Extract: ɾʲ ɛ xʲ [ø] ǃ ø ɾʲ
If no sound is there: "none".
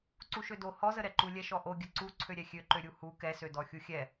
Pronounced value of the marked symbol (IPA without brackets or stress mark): ø